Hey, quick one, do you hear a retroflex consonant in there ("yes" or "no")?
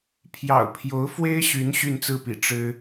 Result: yes